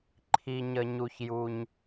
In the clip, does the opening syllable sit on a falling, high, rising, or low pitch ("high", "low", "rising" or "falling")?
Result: low